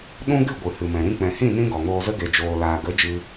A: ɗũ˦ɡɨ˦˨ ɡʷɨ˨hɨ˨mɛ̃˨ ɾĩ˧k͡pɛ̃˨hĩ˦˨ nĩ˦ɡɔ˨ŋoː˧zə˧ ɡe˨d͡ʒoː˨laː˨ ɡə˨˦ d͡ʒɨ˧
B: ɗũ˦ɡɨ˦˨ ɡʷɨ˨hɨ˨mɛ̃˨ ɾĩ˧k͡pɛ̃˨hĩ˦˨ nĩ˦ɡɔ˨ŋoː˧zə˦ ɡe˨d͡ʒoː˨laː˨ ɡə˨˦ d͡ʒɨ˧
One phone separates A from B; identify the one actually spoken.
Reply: B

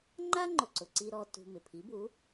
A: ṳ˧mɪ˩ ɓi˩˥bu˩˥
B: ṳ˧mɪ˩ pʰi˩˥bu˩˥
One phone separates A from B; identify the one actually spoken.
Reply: B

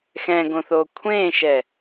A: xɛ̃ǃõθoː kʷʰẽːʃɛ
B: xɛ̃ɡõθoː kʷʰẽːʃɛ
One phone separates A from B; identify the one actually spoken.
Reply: B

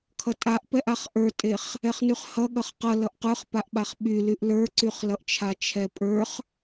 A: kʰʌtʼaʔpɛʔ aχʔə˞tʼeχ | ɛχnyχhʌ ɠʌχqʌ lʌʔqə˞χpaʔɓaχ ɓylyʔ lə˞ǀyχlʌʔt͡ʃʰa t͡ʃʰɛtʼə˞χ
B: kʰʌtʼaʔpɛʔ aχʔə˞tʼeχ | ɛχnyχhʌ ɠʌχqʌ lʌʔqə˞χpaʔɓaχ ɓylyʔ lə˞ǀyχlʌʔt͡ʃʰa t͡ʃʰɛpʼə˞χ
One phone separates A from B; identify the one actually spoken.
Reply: B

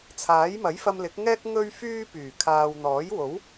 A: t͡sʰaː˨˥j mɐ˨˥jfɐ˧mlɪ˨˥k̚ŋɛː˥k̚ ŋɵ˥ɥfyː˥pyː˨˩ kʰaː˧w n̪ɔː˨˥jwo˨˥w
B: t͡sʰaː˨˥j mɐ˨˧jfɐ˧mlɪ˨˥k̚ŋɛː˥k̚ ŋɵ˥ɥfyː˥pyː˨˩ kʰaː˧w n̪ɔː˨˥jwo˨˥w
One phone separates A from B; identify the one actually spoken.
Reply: A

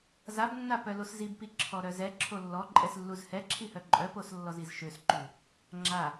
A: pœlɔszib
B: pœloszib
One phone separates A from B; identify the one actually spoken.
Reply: B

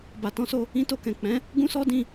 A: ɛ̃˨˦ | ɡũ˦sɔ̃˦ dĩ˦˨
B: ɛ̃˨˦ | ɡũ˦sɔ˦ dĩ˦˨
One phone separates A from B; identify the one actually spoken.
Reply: B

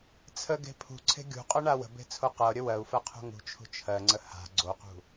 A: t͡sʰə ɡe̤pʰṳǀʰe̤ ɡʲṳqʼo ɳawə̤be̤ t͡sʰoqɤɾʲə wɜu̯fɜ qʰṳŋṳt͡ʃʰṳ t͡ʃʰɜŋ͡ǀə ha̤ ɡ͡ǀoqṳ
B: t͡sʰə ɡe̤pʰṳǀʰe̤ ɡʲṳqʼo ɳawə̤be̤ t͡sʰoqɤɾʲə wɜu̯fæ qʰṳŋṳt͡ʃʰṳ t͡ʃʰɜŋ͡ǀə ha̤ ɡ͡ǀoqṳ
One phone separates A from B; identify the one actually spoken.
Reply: A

